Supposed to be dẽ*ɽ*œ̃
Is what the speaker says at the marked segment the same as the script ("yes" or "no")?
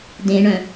no